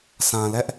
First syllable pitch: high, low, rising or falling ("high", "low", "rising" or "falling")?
low